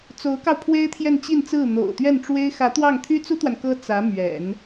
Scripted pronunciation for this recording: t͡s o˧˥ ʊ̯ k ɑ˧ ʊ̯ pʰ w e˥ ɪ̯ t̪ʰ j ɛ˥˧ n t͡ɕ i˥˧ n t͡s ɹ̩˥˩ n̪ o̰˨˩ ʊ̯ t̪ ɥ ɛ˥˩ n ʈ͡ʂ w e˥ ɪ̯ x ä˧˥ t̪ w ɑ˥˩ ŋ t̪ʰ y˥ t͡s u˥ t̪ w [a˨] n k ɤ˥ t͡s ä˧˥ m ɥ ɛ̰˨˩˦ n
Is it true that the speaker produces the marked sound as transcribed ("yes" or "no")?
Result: yes